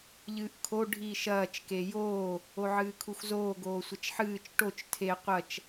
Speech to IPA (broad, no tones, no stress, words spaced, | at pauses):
ʎɨːʔkʰo ɖʱiːʃɐːt͡ʃ kejoː | oʕɨːkʰuxzoː ɡoːsʷɐt͡ʃħɨːt͡ʃ ʈot͡ʃ tʰe qʷɐt͡ʃ